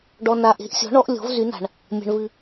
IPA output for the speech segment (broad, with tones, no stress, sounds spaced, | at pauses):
ɖ ɔ˨ n a˨ ʔ e̤˨˥ ʔ sʲ ɔ̤˨˥ ɳ ɔ˨˥ ʔ lʲ ɔ̤˨˥ v z y˨˥ n a̤˨ ɳ | mʲ a̤˨ ɳ v ɨ˨